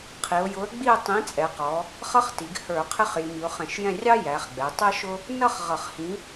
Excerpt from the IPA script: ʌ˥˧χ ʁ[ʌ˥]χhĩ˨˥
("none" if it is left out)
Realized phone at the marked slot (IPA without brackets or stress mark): ʌ˧˩˧